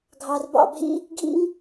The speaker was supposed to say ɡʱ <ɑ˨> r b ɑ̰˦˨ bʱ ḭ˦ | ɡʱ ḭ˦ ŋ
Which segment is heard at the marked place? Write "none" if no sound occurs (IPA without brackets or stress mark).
ɑ˨